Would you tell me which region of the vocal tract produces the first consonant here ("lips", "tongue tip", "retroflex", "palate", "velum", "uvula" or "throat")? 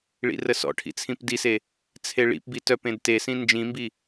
retroflex